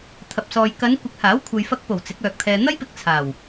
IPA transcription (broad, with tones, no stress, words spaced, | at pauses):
t̪ʰɐ˨p̚sɔː˨j kɐ˨˧nkʷɪ˨˥k̚haː˨˥w kʷʰɐ˨jfɐ˧k̚po˨˩w t͡sɪ˨˥k̚œː˨k̚t̪ʰɛː˧ n̪ɐ˥jpɪ˧k̚ t͡sʰaː˨˩w